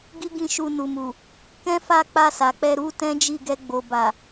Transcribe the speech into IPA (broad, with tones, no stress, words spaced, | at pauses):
ɡi˦ɡĩ˦˨ ʃu˧nu˨mu˨ | kɛ̃˦fa˦˨ k͡pa˧sa˨k͡pɛ˧ ɾu˦tɛ̃˦ d͡ʒi˦˨ɡɛ˧ɡ͡bo˨ ba˨